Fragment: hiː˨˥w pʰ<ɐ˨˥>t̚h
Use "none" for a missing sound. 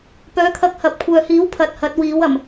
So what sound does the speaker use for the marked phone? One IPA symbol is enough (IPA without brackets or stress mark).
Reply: ɐ˧